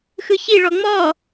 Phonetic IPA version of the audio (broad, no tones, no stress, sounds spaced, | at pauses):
x ɯ ç i ɭ ɔ ŋ͡m ɔ